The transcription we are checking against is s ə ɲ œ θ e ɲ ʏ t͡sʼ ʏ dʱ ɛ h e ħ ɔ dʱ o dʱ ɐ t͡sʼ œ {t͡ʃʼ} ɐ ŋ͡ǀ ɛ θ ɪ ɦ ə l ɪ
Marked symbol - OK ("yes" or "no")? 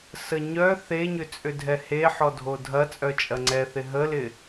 yes